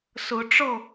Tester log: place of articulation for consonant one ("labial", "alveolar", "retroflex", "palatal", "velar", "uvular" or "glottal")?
alveolar